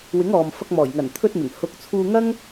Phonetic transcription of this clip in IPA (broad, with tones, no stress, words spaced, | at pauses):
wɪ˨˥ŋɔː˨m fɐ˧k̚mɔː˨˩j ŋɐ˨˩n t̪ʰɵ˧t̚mɪ˨˩ŋ hʊ˨˥k̚t͡sʰuː˧ŋɐ˥ŋ